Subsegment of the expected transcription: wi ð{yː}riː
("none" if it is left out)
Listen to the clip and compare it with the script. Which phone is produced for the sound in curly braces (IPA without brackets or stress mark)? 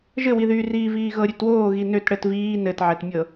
yː